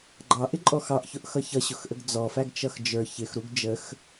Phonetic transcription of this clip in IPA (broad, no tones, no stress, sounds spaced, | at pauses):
ɡ͡ǃ ɑ ʔ ɪ ǃʼ ɔ x ɑ ʔ ç ʊ ʔ x ʌ ç ʌ ɕ ʊ x ʔ ə ɡ d͡z ɔ f æ ɡ t͡ʃ ʌ x d͡ʒ ə˞ ç ɪ x ɾ u ɡ d͡ʒ ə x